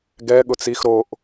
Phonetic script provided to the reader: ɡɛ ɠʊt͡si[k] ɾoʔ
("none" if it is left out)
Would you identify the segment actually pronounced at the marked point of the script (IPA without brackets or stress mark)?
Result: x